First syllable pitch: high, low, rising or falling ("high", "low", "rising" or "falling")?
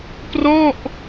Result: falling